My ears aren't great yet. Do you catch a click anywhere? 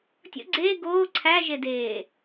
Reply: yes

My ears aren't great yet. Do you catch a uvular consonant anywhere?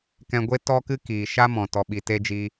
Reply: no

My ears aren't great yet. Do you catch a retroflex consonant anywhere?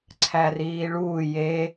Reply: yes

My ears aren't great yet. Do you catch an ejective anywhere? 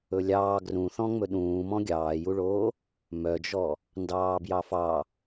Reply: no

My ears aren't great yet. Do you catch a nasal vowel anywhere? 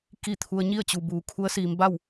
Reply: no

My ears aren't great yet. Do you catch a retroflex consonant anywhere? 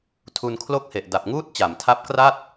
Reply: no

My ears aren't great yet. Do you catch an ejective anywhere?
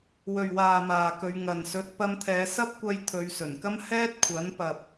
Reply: no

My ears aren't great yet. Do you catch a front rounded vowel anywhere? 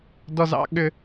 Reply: yes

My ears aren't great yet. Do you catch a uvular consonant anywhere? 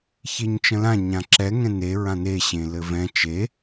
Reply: no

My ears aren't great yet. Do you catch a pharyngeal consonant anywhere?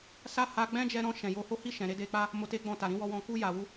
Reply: no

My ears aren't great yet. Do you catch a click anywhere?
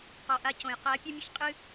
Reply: no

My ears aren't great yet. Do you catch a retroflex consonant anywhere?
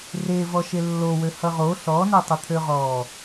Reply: no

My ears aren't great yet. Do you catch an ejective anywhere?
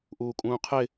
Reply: yes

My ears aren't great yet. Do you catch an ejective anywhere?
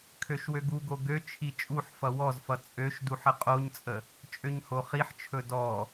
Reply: yes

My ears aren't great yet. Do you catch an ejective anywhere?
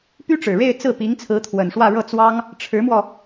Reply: no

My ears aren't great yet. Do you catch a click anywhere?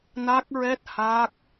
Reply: no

